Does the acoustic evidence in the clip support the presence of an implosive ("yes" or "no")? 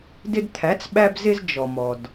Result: yes